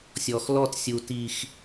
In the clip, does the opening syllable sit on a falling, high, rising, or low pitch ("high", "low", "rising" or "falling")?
low